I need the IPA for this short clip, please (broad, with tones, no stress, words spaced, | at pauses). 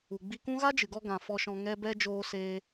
u˨ɡ͡bi˧kũ˦ ɣa˦d͡ʒɨ˨ɡɔ˧ɡã˨ fɔ˧ʃɔ̃˧ŋɛ˦bɛ˦ d͡ʒoː˦seː˦